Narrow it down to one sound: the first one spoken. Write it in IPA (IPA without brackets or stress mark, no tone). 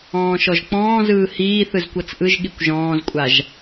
ɔ̃ː